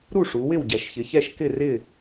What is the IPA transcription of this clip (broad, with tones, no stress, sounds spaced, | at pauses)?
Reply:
ɾ u˥˨ ʂ u˩˧ w ɪ˥˨ w ɟ ɛ˩˧ ʃ ç ɪ˩˧ ç ɛ˥˨ ʃ k ɪ˥˨ r ɪ˥˨